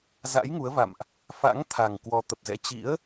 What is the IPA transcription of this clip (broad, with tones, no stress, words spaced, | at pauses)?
za̰˧˥jŋu˨˦ə̯va̰˧˨mʔ | fa̰˧˥ŋt̪ʰa˨˩ŋ kwɔ˨˦t̪ə˨˩p̚zɛ̰˧˥ t͡ɕḭ˧˥ə̯